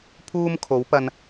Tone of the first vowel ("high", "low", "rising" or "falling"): high